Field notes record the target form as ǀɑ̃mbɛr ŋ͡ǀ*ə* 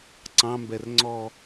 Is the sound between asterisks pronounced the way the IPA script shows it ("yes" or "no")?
no